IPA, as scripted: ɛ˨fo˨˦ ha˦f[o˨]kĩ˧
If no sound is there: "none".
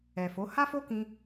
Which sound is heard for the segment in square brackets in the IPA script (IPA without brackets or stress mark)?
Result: o˦